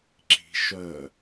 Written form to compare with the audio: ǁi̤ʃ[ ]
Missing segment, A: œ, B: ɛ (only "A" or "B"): A